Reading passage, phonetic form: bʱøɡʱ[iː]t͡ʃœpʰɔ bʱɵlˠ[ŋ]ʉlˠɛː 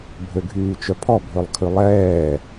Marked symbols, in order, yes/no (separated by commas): no, no